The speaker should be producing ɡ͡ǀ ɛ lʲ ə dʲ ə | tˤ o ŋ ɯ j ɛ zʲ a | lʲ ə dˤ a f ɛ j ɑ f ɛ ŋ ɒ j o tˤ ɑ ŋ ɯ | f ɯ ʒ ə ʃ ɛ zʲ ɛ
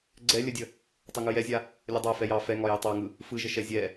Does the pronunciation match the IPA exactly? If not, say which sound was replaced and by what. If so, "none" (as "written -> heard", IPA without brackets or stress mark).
none